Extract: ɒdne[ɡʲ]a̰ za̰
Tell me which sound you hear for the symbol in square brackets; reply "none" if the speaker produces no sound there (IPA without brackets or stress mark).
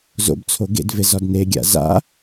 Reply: ɡʲ